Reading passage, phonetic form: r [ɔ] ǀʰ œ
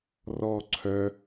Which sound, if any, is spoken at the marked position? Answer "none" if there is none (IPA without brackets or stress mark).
ɔ